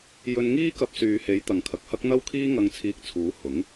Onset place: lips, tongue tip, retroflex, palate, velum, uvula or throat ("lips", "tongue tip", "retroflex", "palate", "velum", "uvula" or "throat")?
palate